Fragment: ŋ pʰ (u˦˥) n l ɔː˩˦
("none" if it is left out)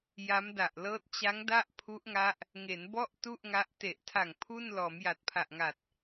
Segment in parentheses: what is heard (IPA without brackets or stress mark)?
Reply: u˥˩